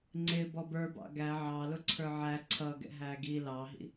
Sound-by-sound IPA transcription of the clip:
ŋ͡ǀ ɪ b ɔ b ə˞ b ɑ̰ ɡ æ ʕ ɑ l ʊ ǀʰ ə˞ ʕ æ ǀʰ ʌ ɡ ɛ̰ ɦ æ ɡ i l ɑ ɦ ḭ

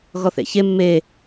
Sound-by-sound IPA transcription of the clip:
ɣ ɔ θ ḛ ç e mː e

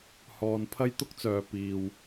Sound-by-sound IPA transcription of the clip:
h ɔː˨ n pʰ ɐ˥ j t̪ ʊ˥ k̚ t͡s œː˨ p iː˨ w

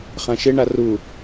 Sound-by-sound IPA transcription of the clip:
χ ã ʃ ɪ ɳ a r u

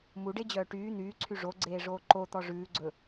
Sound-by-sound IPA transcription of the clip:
m u ɖ e d͡ʑ œː ʈ yː n̪ yː ǀʰ y ʐ o ɡ͡ǀ eː ʐ oː ǃ o t̪ ɔ ʐ ʉː ɡ͡ǀ ɵ

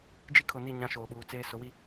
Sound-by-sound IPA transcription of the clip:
d͡ʒ i˦ kʰ ʊ˨ n i˦˨ ɲ ã˦ ʃ oː˨ ɓ uː˨ t͡s eː˦ s ʊ˨˦ w i˦

